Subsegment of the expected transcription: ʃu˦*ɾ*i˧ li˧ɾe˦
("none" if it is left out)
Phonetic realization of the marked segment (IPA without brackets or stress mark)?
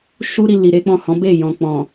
ɾ